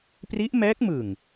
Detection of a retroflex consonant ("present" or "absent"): absent